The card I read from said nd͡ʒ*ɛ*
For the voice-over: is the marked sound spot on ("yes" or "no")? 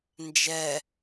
yes